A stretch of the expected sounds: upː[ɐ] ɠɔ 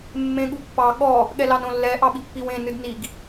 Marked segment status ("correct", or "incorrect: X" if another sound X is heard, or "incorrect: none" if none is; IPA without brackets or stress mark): incorrect: ɑ